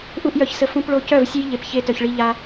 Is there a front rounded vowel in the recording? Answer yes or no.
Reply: yes